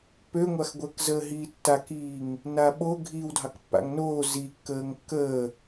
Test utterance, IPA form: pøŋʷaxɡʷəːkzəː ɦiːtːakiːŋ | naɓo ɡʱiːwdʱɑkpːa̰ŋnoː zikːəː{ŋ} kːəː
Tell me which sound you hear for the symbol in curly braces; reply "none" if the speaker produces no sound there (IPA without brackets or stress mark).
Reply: ŋ